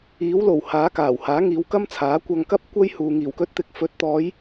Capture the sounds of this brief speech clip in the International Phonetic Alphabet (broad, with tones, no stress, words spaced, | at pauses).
iː˨˥wlo˨˩whaː˨˥ kaː˨˩w haː˨˥ŋiː˨˧wkɐ˥mt͡sʰaː˨˥ kʷɐ˧ŋkɐ˥p̚ kʷɐ˥jhuː˨ ŋiː˨˩wkɵ˧t̚t̪ɪ˨˥k̚fɵ˨˥t̚ t̪ɔː˨˧j